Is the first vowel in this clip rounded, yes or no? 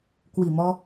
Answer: no